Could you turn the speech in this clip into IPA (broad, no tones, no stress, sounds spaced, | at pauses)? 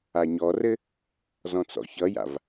a ɲ ɔ r ɘ | z ɔ̃ t͡s ɔ̰ ç ʌ j a̰ v